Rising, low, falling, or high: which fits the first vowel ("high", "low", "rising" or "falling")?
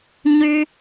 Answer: high